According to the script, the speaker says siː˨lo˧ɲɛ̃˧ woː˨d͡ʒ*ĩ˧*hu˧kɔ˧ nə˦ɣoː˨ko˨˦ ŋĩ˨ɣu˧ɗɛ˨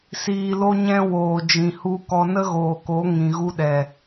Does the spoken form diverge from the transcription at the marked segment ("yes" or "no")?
yes